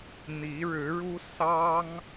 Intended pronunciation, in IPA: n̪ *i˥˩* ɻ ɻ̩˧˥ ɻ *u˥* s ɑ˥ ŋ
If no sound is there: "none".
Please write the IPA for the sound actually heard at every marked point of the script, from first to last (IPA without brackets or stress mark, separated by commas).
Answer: i˧˥, u˥